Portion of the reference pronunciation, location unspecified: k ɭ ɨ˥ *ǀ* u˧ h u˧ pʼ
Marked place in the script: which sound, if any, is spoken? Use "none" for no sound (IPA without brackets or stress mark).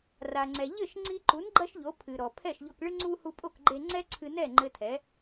ŋ͡ǀ